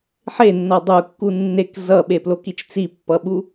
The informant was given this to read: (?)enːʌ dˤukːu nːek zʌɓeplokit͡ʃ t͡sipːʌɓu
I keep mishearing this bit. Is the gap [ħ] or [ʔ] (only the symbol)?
ħ